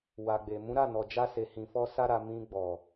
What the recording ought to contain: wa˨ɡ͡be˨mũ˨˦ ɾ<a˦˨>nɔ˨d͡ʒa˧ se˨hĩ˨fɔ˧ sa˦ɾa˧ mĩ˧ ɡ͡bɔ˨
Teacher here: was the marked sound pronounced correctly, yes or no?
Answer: yes